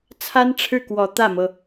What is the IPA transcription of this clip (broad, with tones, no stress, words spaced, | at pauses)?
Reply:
t͡sʰa˥nʈ͡ʂʰɻ̩˥˩kwɔ˨˩ t̪ä˥˩mɤ˩